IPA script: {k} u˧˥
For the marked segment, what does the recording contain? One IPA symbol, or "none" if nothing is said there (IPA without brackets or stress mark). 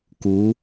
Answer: k